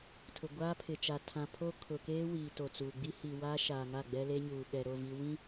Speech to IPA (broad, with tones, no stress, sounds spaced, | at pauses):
tʰ ʊ˨ ɡʷ aː˦ pʰ ɪ˨ t͡ʃ a˨ tʰ ã˨ pʰ o˦ kʰ ʊ˨ k eː˦ w iː˨ t o˨ t͡s uː˨ ɡ͡b i˦ h iː˨ w aː˦ ʃ aː˨ ŋ a˦˨ ɡ͡b ɛ˦ l eː˦ ɲ uː˨ ɓ ɛ˨ ɾ o˦˨ v i˨ w ĩ˦